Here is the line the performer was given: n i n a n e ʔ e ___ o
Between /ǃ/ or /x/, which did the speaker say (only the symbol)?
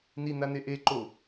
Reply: ǃ